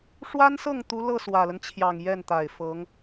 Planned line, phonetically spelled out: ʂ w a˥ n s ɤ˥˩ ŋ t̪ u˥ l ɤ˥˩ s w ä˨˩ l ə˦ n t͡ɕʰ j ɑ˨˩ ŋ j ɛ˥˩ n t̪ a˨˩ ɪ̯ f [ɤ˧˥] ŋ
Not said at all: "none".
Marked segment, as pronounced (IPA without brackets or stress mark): ɤ˧˥